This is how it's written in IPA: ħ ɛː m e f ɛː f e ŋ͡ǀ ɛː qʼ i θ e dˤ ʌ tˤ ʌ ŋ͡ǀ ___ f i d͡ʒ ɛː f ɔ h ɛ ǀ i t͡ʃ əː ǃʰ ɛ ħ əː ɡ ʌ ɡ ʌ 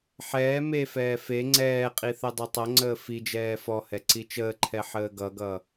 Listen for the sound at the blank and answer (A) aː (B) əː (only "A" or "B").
B